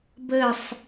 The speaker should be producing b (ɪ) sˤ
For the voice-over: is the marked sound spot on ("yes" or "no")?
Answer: no